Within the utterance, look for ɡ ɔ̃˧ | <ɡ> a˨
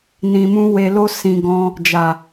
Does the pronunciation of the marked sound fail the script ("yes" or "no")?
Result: yes